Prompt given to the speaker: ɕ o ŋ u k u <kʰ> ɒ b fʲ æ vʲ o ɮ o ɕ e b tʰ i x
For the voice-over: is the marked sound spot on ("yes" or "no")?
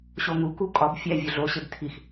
no